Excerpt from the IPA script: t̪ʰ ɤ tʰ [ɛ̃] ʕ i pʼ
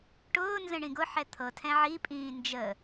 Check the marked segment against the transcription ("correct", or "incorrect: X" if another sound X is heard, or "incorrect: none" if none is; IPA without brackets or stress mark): correct